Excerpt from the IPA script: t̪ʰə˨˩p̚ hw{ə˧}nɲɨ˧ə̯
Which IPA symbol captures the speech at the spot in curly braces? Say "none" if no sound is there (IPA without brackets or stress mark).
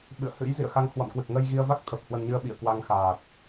ə˧